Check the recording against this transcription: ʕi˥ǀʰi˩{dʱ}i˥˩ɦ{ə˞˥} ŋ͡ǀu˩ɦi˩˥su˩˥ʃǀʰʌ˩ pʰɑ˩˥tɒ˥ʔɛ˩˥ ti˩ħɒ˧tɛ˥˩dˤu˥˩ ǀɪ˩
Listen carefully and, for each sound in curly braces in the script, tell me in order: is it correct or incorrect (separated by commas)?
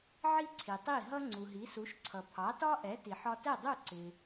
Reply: incorrect, incorrect